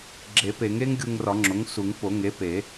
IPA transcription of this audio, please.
ɡ͡ǁe˨˩˦pe˨˩˦ŋe˦˥ŋ ɡʲu˧ŋrɒ˨˩˦ŋ͡ǁo˩˥ŋsu˨˩˦ŋ po˨˩˦ŋe˩˥pe˨˩˦

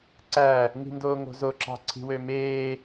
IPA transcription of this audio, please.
ǀæ | ŋi̤ndoːŋo̤zo ǁɑ̤ǀʰi̤wømeː

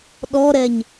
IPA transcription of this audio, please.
ɗɔɾɛɲ

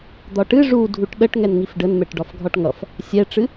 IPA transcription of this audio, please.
d̪ɒʈɨ ʐu dʱuʈɗəʈ ŋɛnŋifɖənmɛʈ ɖɒfɡʱɒʈŋʌf | sʲɛʈ͡ʂɨ

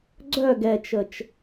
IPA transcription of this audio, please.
ɡ͡ǀœ ɡɛt͡ʃət͡ʃ

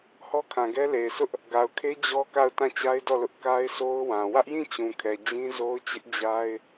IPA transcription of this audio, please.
hɔ˦kʰã˨ɡɛ˦le˨ɪ̯ sʰʊ˦ʔ | ɡa˨ʊ̯kʰe˦ d͡ʑɔ˦ka˦˨ʊ̯ tã˦˨t͡ɕa˦ɪ̯dɔ˦˨lʊ˦ʔ ka˦ɪ̯sʰo˦ʊ̯wã˨ wä˦ʔjĩ˦˨ t͡ɕũ˨kʰɛ˨ d͡ʑĩ˦zo˦ʊ̯t͡ɕɪ˦ʔ d͡ʑa˦ɪ̯

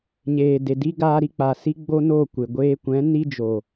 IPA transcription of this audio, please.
ɲeː˨de˨di˦ ɡaː˧ɾi˧k͡pa˨si˦ ɡ͡bo˦no˦˨kʷe˨ ɡʷeː˧kʷɛ̃˨˦ni˦d͡ʒo˨

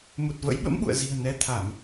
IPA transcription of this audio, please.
mu˨˩t̚və̰˧˥j ɓə̰˧˥mɓṵ˧˨ə̯zi̤˨˩ə̯ nɛ˧t̪ʰa˧˩˨m

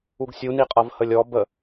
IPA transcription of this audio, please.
uɡsʲuniqʼʌv həlʲɔ bə

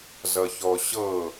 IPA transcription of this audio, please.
zʌçɔɕɤ

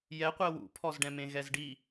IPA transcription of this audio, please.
jɛqʷɛ wṵpʰɔzɖɛ̃mẽ ɣɛzɖi

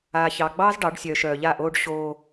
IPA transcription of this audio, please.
aː˨çɑ˨ ɡ͡bɑː˦z ɖɑ˨˦ɖ sʲœː˨ʃœː˨ʎa˦˨ʔoː˦ɖ ɕoː˦

